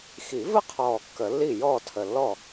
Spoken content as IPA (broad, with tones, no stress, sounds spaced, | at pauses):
x i˨˩˦ v ə˥˩ qʰ ɔː˨˩ kː ə˨˩˦ lː i˥˩ j ɔː˥˩ tʰ ə˨˩ lː ɔ˥˩